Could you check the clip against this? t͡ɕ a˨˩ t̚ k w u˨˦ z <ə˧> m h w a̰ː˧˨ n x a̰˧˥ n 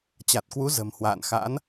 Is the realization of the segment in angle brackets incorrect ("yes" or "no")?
yes